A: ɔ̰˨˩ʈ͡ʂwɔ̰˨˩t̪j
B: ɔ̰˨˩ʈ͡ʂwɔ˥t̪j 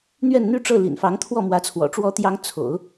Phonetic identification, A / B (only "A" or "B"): B